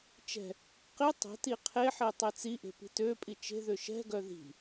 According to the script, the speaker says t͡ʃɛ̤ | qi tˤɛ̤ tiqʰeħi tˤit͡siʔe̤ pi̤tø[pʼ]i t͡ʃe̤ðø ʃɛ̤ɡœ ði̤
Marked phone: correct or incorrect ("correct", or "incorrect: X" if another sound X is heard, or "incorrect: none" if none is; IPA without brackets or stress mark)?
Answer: correct